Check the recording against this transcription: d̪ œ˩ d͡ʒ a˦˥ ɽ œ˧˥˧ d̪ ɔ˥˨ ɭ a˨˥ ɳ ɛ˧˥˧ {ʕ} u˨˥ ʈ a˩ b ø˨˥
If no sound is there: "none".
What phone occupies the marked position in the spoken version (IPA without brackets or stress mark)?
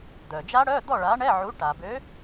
ʕ